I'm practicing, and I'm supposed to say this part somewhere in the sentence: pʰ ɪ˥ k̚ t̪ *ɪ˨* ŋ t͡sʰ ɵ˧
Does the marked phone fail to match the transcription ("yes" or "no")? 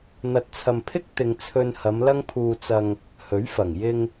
no